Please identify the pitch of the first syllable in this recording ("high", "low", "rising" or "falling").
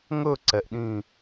falling